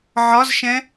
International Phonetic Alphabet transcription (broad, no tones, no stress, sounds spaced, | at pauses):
ʕ ɒ z ʃ ɛ̃